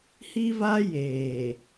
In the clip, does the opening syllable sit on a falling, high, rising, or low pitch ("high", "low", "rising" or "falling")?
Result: high